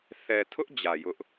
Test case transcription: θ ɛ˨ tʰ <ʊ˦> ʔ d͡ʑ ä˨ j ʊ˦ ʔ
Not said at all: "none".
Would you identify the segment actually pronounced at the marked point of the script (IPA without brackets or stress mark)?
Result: ʊ˦